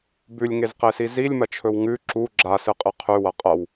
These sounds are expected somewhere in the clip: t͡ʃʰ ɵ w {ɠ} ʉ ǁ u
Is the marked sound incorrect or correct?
incorrect